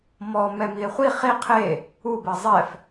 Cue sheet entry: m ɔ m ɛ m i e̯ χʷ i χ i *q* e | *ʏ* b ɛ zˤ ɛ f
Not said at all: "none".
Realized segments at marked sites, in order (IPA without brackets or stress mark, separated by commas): qʰ, u